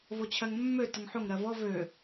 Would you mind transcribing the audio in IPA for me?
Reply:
v o t͡ɕʰ ɜ ŋ mː ø t ə ŋ ħ o ŋ ɾ ɜ v ɔ v ø

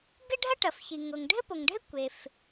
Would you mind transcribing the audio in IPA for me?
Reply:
ɡ ɘ˥ ɖʱ ɐ˥ ʈ ɐ˩ f ç i˩ ŋ o˩ ŋ ɖʱ ɘ˥ p o˩ ŋ ɖʱ ɘ˥ kʷ e˩ f

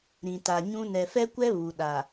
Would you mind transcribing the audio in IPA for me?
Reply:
ɾ ĩ˨ t a˨ ɲ ũ˦ n ɛ˨ f ɛ˦ kʷ ɛ˦ β u˨ ɗ a˨

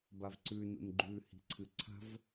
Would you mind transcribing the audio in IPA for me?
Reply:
b a v ǀ ʉ n ṵ n ɡ͡ǃ ʉ h i̤ ǀʰ ɨ ǀʰ a̤ v

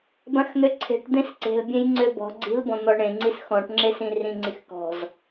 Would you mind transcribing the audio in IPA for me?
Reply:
b ã x n̪ ø ǀʰ e̤ ʈ d̪ ẽ s ǀ e̤ l bʲ ẽ j ŋ͡ǀ ø b ɔ̤ ɡ͡ǀ i̤ l b ɔ̃ n̪ ɔ ɳ ẽ ŋ͡ǀ i s x ɔ̃ ʈ ŋ͡ǁ e s ĩ r ĩ ŋ͡ǀ i x k ɔ̤ z

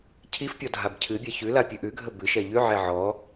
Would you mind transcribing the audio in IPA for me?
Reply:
cʰ i f pʲ ɔ dʱ a b cʰ ɨ bʲ ɛ ç ʉ l a pʲ ʉ ʔ ʉ ɡʱ ə b ɨ ʃ ɛ ʎ ʉ ʕ ɛ ʕ ɔ

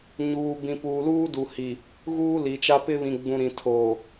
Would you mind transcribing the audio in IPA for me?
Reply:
ɲ uː˨ b ĩ˨ p uː˨ l uː˦ d u˨ h i˨ | ɣ uː˦ l i˨ t͡ʃ a˦ p ɪ˦ β ĩ˨ ɡ͡b ũ˨ ɾ ĩ˨ tʰ oː˨

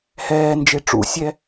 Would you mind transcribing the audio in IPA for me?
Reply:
h ɛː n d͡ʒ e ʈ͡ʂ ṵ sʲ ɛ

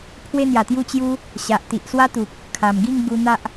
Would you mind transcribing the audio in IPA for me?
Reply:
pʰ w e˦ n̪ j a˨˩ t̪ j u˥˧ t͡ɕ j u˦ | ɕ a˨ ʔ t̪ i˨ ʔ s w a˦ t̪ u˨ k̚ | kʰ a˨˩ m ɡ i˥˧ ŋ ɡ u˧ n̪ a˦ ʔ

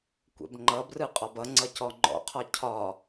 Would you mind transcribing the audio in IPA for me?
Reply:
kʷ ɛ̰ b ŋ͡ǃ ʌ b r ɯ qʼ ɒ b ʌ ŋ͡ǀ ʌ c ɔ ŋ͡ǃ ɔ̰ qʰ ɒ cʰ ɒ

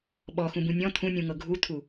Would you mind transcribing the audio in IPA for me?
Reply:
ɓ ɔ x ũ b ũ nʲ ɔ̃ t̪ʰ ũ nʲ ũ ŋ ɤ ɡʱ u t̪ʰ u

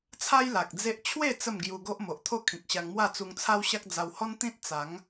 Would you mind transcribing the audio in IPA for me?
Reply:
t͡sʰ a˦ j l a˨ k̚ d͡z e˦ ʔ t͡ɕʰ w e˥˧ t͡s ə˥˧ m ɡ j u˧ ɡ o˦ ʔ m o˨ ʔ t̪ʰ o˥˧ kʰ ĩ˨ k̚ ɕ a˧ ŋ m w a˥˧ t͡s u˧ ŋ t͡sʰ a˦ w ɕ a˦ k̚ d͡z a˧ w h ɔ˦ n t̪ ĩ˦ t̚ t͡s a˨˦ ŋ

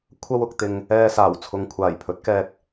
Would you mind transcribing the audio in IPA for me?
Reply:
kʷʰ ɐ˧ w ʊ˨ k̚ t̪ ɪ˨ ŋ | ɛː˧ s aː˨˩ w t͡sʰ ʊ˨ ŋ kʷʰ aː˨˩ j pʰ ɵ˨˥ t̚ k ɛː˧ k̚

